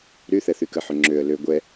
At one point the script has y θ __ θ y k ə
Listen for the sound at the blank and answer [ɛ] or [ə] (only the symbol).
ɛ